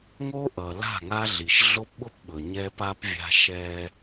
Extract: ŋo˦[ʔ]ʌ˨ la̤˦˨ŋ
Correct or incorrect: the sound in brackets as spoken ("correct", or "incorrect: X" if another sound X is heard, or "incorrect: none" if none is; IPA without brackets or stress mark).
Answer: correct